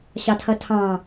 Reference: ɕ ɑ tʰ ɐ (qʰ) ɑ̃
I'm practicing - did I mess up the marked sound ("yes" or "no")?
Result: yes